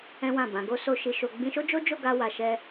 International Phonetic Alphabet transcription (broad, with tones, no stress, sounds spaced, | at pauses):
ɛ̃˦ w ã˦˨ b ã˨˦ ɡ o˦ s o˦ ʃ i˧ ʃ o˨ ɡ͡b ĩ˧ ʃ o˦ d͡ʒ o˦ d͡ʒ o˦˨ ɡ a˧ w a˨ ʃ ɛ˧